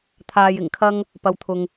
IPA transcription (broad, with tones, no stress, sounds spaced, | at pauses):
t̪ʰ aː˧ j ɪ˨˩ ŋ kʰ ɐ˥ ŋ | p ɐ˧ w t̪ʰ ʊ˧ ŋ